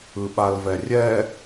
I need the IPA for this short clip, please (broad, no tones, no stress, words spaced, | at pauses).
ɯɓalvɛrʲɛ